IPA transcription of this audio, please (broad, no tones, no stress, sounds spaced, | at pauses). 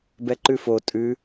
b ɛ ǃ ʉ f o tʼ ʉ